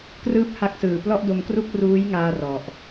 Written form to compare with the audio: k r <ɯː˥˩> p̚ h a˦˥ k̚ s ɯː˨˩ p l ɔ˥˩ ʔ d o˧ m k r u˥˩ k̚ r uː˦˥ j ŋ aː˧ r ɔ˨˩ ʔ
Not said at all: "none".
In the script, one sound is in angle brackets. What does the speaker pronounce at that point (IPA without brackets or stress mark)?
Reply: ɯː˥˩